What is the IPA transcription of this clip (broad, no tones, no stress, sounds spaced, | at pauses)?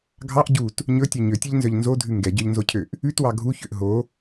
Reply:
ɡʱ ɑ ʔ ɟ u t | ɲ ɵ tʲ ø ɲ ø tʲ e ʎ n z œ ʎ n z o dʱ ʉ ŋ ɡ ɛ ɟ œ ʎ n z o cʰ ø ʔ | ʉ t w ɑ ɡʱ u ç ø ʔ ɦ o